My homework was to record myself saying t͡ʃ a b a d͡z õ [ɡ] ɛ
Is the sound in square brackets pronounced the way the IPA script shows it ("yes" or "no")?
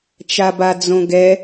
yes